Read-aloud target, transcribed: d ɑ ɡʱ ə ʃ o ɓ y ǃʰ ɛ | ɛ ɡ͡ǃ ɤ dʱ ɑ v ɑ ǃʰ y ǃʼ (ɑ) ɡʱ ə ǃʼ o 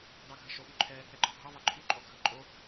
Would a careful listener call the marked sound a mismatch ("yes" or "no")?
yes